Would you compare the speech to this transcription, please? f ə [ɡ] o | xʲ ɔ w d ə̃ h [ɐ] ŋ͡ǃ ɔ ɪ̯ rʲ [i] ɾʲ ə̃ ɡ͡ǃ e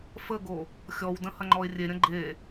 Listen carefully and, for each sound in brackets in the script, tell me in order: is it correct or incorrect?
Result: correct, correct, incorrect

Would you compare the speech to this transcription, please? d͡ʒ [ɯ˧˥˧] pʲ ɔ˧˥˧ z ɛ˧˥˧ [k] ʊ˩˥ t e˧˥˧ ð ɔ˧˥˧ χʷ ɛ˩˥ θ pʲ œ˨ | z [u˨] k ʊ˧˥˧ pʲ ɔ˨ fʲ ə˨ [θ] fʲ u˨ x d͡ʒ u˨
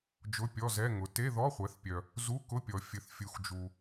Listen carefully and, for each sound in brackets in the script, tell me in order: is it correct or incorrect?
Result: incorrect, incorrect, incorrect, correct

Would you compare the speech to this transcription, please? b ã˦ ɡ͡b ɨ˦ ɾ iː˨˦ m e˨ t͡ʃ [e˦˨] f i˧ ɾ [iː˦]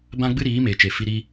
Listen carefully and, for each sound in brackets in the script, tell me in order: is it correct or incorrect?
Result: incorrect, incorrect

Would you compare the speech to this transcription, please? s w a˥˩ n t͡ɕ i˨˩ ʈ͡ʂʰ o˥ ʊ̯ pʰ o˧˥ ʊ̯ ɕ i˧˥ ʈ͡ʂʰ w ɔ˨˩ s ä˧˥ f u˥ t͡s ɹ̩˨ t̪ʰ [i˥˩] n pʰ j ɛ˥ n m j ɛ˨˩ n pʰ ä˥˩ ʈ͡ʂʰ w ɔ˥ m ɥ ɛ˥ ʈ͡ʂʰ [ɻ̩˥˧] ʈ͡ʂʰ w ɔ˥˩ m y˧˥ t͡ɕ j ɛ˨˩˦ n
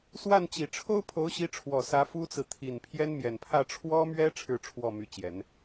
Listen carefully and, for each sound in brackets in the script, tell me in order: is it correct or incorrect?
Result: incorrect, correct

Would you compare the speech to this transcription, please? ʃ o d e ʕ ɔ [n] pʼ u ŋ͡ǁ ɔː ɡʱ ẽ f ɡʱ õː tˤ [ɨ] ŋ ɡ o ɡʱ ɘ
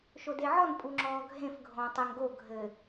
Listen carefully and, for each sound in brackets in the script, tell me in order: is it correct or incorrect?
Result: correct, incorrect

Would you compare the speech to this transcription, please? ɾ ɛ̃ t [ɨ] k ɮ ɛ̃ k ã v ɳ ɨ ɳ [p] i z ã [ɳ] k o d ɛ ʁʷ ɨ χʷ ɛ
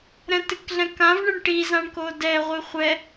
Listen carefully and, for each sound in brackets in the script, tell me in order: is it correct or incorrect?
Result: correct, incorrect, correct

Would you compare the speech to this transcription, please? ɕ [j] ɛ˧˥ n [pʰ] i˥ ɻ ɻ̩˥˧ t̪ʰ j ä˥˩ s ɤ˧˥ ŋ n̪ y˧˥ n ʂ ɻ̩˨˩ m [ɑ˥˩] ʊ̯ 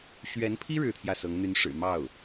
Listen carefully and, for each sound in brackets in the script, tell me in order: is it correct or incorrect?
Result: incorrect, correct, correct

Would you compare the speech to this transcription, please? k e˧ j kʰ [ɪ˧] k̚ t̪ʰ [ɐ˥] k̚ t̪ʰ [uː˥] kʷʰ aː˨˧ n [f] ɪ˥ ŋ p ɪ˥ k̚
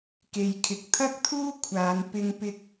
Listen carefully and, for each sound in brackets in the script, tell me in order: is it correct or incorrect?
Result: correct, correct, correct, incorrect

